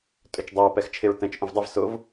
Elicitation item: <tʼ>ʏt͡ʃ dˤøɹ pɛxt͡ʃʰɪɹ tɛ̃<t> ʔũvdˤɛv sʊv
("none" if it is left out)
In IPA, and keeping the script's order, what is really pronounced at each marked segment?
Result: tʼ, t͡ʃ

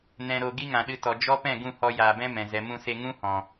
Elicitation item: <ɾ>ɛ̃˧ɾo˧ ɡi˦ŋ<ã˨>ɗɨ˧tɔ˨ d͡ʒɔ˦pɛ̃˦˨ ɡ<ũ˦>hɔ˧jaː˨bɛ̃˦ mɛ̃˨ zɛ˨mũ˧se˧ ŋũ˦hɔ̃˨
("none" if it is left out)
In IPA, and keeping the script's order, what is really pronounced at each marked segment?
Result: n, ã˨, ũ˦˨

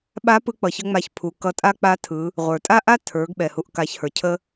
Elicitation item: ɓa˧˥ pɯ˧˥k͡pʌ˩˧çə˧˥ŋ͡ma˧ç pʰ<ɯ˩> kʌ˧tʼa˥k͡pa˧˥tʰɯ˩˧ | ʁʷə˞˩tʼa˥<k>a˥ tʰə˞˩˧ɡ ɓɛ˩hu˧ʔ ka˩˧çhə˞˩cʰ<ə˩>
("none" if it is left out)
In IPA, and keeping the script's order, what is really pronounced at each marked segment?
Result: u˩, ʔ, ə˧

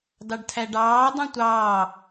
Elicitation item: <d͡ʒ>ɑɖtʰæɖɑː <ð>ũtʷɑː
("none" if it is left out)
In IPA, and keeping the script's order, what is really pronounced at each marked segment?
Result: d, dˤ

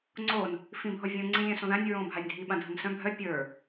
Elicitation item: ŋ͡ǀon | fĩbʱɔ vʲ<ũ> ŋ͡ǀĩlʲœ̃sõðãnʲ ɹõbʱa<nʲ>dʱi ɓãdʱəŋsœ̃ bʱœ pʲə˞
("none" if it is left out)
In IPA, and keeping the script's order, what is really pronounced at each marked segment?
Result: õ, nʲ

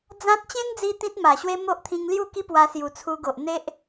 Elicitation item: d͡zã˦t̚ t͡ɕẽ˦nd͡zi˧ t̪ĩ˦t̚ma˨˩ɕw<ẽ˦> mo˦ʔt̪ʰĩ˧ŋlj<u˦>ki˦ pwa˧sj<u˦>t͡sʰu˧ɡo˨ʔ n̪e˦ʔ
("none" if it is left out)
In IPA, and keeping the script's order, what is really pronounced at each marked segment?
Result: e˦, u˥˧, u˨˩

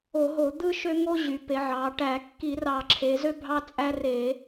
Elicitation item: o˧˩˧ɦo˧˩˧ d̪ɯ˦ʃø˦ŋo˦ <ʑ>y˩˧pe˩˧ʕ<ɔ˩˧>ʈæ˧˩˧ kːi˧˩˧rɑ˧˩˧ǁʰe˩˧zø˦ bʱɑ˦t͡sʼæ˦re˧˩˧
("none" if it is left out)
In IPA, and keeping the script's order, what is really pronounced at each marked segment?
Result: ʑ, ɑ˩˧

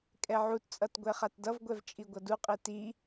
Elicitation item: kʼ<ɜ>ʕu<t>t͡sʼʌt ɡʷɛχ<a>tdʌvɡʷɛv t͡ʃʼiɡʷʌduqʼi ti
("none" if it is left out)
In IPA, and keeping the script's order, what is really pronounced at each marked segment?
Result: ɛ, t, a

